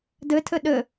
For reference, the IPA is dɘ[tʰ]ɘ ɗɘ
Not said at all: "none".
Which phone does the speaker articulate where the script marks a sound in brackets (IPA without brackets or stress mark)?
tʰ